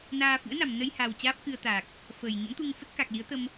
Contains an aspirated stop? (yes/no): no